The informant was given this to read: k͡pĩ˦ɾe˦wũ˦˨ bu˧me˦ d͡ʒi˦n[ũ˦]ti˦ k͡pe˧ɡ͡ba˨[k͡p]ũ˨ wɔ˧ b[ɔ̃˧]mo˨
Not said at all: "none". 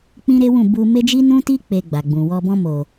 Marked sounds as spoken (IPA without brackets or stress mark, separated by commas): ũ˦, ɡ͡b, ɔ̃˧